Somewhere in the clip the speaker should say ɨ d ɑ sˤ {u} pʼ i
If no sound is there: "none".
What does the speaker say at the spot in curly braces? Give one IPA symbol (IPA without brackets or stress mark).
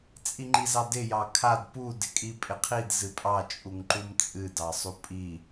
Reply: u